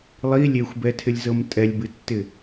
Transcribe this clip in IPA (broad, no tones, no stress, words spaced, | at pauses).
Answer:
lˠi lʲexʷbɛtʰɪlʲzɤm tʼɛlʲbɨtːɪ